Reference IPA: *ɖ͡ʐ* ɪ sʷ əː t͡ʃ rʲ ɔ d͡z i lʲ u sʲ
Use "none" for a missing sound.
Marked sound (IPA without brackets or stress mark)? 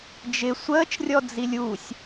d͡ʒ